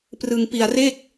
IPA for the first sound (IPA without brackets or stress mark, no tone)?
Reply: p